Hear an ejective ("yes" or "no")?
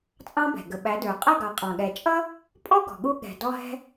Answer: yes